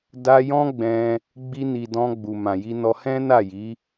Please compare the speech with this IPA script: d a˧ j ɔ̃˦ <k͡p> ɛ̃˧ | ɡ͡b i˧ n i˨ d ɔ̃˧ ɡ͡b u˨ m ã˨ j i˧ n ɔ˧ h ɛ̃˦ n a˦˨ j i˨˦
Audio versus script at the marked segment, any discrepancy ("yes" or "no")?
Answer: yes